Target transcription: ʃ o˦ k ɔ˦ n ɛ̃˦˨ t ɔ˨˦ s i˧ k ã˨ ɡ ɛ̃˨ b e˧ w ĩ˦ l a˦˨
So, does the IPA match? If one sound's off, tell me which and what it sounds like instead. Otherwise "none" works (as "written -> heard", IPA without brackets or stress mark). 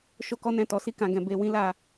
none